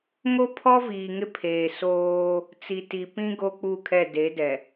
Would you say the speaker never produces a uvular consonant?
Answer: yes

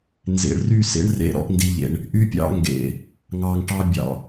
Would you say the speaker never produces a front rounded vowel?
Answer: no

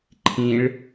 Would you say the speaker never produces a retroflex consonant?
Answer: no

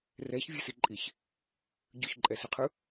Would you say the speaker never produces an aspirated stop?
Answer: no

